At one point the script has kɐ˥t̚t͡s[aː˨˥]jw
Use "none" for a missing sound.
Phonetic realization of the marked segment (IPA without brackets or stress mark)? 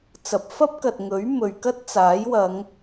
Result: aː˨˥